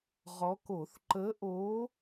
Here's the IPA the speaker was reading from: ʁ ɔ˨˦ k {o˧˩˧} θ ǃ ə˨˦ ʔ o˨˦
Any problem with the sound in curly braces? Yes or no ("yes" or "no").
no